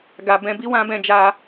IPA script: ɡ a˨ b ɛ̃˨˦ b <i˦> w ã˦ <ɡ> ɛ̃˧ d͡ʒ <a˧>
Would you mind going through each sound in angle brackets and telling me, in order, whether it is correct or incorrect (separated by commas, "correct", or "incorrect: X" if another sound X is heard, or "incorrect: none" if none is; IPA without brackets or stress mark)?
correct, incorrect: b, correct